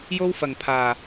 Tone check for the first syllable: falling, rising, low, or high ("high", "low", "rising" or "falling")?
high